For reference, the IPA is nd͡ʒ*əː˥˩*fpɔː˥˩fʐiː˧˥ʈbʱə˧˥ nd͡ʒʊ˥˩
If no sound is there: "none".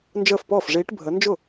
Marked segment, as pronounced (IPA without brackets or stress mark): əː˥˩